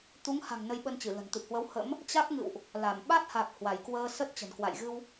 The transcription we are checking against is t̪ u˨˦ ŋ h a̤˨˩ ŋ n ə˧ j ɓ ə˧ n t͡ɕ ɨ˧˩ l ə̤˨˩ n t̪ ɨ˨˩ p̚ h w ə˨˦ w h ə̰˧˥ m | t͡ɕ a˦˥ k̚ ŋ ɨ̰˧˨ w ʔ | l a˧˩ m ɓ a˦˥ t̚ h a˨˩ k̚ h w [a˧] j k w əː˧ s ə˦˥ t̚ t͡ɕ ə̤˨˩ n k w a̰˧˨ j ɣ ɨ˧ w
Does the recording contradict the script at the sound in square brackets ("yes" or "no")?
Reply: yes